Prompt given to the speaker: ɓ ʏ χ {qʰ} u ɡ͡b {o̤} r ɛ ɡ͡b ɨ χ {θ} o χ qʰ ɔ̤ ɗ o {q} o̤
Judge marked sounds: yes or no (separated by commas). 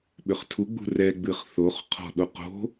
no, no, yes, yes